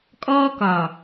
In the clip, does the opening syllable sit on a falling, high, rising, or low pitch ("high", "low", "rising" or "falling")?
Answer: high